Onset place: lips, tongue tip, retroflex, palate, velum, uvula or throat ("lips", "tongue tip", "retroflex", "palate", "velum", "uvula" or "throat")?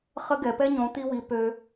uvula